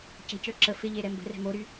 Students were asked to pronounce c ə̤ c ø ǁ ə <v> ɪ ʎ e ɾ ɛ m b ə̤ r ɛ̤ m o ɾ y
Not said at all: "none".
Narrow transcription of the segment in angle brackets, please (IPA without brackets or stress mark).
f